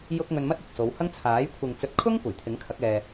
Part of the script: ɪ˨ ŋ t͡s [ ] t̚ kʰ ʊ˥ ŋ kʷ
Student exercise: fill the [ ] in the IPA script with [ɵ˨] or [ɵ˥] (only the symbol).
ɵ˨